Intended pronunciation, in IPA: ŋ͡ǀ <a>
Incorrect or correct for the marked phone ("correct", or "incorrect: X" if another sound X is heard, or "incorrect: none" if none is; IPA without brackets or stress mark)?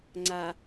correct